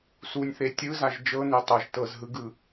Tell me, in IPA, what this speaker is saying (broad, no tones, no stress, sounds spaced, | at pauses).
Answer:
s u nʲ θ e tʲ ɯ z a ʒ d͡ʒ ɤ n e tˤ ɤ ʒ t ɤ z ɦ ɯ ɡ ɯ